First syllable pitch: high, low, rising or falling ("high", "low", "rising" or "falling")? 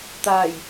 low